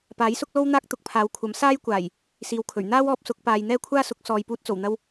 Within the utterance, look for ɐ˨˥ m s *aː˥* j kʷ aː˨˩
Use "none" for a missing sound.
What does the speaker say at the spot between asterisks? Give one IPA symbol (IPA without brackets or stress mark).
aː˥